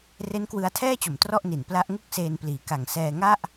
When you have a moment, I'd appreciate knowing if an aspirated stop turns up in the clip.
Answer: yes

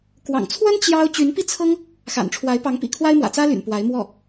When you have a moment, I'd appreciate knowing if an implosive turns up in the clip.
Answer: no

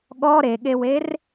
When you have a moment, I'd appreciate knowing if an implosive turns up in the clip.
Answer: yes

